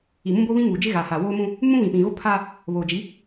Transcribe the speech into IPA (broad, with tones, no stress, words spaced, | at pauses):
i˨mũ˦bo˦βĩ˦ ŋuː˨d͡ʒɪ˦ɣaː˨ha˨ woː˦mũ˦ | mũ˦ βĩ˨pĩ˨ɣo˦ pʰaː˦ | βoː˨d͡ʒi˨˦